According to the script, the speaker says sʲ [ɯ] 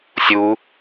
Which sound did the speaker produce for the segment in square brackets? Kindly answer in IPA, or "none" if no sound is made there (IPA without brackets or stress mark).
u